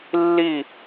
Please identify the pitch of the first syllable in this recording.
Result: falling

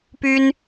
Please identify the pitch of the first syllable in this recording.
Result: high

